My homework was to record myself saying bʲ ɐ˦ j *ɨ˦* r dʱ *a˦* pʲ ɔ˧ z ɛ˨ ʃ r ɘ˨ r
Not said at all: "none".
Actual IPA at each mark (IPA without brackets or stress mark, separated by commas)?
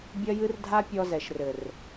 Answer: ɨ˦, a˦